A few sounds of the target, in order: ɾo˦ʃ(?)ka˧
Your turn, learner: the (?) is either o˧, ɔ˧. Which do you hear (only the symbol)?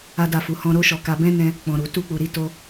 ɔ˧